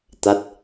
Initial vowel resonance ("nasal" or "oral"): oral